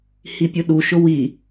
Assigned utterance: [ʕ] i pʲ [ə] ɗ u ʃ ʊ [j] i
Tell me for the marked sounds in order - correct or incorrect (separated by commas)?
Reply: incorrect, incorrect, incorrect